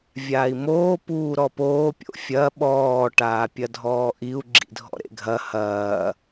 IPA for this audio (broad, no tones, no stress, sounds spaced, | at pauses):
vʲ aː i̯ m oː p uː ɾ ɔ p oː pʲ o̰ fʲ ɐ ɓ ɔː ʈ aː pʲ ɐ dʱ ɔː ʔ i u̯ ɡ͡ǁ ḭ dʱ ɔ̰ ɾ ḛ ɡʱ ɐ h ɐː